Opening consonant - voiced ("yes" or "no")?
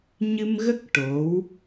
yes